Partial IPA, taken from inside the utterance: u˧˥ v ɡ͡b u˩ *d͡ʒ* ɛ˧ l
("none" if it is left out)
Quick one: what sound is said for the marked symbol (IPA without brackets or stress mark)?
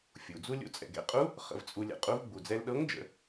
d͡z